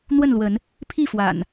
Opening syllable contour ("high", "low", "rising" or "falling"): falling